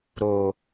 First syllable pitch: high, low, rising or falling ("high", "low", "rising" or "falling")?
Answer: low